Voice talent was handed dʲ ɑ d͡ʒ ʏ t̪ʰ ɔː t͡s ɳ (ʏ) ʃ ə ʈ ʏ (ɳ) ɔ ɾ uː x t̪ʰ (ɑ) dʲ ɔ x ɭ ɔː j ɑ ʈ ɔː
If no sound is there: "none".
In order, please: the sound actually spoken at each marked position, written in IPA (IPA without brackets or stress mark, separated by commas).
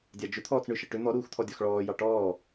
ʏ, n̪, ɔ